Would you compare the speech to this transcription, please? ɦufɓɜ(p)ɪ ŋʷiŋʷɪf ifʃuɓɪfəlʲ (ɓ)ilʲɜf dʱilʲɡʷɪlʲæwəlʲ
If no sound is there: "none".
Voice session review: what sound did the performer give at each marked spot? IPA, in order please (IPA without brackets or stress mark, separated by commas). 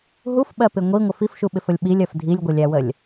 p, ɓ